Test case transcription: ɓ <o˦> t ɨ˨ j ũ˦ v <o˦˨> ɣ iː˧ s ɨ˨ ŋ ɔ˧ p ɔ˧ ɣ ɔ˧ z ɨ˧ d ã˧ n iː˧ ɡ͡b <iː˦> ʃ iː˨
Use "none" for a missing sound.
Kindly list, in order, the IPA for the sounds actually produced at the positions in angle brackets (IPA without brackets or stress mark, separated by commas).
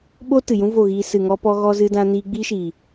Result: o˦, o˦˨, iː˦